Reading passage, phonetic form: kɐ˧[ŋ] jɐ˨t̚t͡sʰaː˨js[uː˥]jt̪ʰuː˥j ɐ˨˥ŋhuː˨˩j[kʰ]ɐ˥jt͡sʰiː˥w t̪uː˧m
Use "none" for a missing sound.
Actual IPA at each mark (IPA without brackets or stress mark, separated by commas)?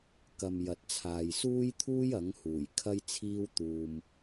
m, uː˥, kʰ